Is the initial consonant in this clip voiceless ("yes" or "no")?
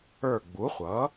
no